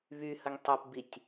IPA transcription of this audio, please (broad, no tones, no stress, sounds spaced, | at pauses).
β y h ə ŋ tˤ y p b i tʲ